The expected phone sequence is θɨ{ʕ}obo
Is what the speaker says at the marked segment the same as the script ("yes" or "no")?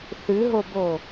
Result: no